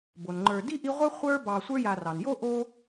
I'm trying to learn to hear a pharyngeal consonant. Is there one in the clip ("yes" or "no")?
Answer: no